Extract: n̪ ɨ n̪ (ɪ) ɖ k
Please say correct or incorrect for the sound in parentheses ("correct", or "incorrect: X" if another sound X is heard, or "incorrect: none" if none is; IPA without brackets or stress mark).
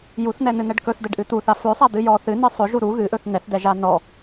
incorrect: ɛ